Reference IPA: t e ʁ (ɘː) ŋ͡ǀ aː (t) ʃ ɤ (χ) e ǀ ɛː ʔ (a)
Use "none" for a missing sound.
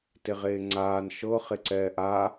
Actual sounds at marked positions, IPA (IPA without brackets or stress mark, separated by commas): eː, n, χ, a